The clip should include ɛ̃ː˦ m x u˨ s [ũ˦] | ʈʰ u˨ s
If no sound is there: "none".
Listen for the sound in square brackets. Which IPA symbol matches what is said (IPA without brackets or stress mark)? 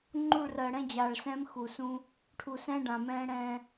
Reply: ũ˦